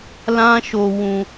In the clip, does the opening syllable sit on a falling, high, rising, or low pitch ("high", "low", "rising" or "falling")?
high